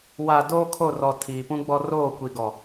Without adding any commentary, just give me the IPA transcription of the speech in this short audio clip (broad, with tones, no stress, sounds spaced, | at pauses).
w a˨ d oː˦ kʰ o˦˨ r ɔ˨ tʰ iː˨ p ũ˦ ɡ͡b ɔ˦ r oː˦˨ kʷ i˨ ɡ ɔ˨